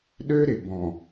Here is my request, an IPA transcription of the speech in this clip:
ɗ ø˦ ɾ ɪ˨ b ɔ̃˨

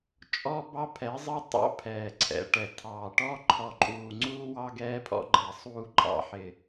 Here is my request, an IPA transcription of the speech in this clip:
t͡ʃʼ ɔ˦ b ɑ˦ pʰ ɛ˨˦ zˤ ɪ˦ tˤ ɑ̰˦ pʰ ɛː˨ ǀʰ ɛ̰˨˦ ʈ ɛ˨ tʰ ɑː˨ ʈ ɔ˦ ǃʰ ɔ˨ ǃʼ uː˨ ŋ͡ǀ uː˦ w ɑ˦ ɡ ɛː˦ pʰ ɔ̰˦ ɡ͡ǃ ɛ˨ sˤ uː˦ ǃʼ ɑ̰˦ ħ ɪ˨

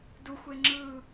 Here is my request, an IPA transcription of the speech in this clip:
d u xʷ e ŋ͡ǁ ɯ

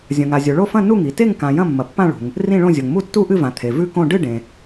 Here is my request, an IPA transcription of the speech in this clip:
zʲ ɐ̃˩ ŋ a˩ zʲ o˩ ɭ o˥˨ f ɐ̃˥˨ n u˥˨ ŋ i˩ t e˥˨ ŋ k ã˩ j ɐ̃˥˨ mː ɐ˩ pː ã˥˨ ɭ ṳ˩ ŋ | r ĩ˥˨ ɭ õ˥˨ zʲ o˩ ŋ m u˥˨ tː u˥˨ ʔ ɨ˥˨ v ã˩ t̪ʰ e˩ v ʉ˥˨ k õ˥˨ ɖ ɨ˥˨ ɖ ẽ˩

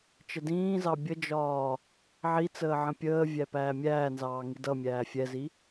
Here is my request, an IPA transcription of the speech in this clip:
t͡ʃ ə d ĩː z ɑ bʲ ə d͡ʒ ɒː | ʕ i t͡s əː ʕ ə̃ pʲ əː vʲ æ p æː mʲ æː n z ɑː ŋ i d ʌ mʲ æː fʲ ɛ z i

